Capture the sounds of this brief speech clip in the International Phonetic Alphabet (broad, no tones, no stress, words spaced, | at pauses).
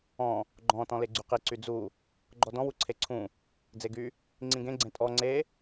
ɔ̃ | ɡ͡ǃɔ̃ tɔ̃leɡ͡ǀyqi ǀyd͡zu | ɡ͡ǃɔdɔ̃ wuǀʰeǀʰũ | d͡zeɡy | ŋ͡ǀĩɡẽ ɡ͡ǀẽtʼɔ ŋ͡ǀe